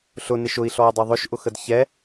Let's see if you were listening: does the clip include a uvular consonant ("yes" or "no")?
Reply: no